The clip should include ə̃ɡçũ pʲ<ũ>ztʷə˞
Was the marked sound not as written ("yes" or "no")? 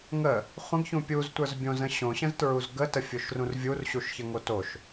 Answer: yes